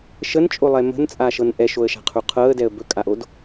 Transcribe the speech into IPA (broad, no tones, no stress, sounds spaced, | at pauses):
ʃ ə n t͡ʃʼ o lˠ ɛ m ə̤ n t͡sʼ a ʃ ɤ n ʔ ɛ ʃ o ə̯ ʃ a̤ qʰ u qʰ ɤ ə̯ d ɛ ə̯ b ɵ kʼ a ʔ o d